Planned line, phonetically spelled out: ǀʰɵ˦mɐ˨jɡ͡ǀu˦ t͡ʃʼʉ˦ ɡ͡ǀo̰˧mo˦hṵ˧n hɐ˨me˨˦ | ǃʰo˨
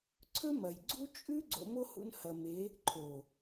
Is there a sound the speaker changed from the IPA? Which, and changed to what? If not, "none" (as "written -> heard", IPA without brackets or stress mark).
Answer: none